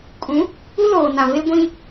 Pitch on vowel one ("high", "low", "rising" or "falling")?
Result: rising